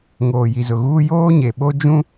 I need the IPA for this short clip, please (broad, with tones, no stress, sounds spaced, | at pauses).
ŋ oː˨ j i˨ z ʊ˨ ɣ uː˦ j oː˦ ɲ e˨ ɓ o˦ d͡ʒ ũ˦